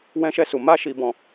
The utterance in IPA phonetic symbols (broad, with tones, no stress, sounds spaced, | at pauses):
w ɛ̃˦ ʃ ɛ˦ s u˧ m a˦ ʃ i˧ b ɔ̃˧